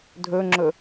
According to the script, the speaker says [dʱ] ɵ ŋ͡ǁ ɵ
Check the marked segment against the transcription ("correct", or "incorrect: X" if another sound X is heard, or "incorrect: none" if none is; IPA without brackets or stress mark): correct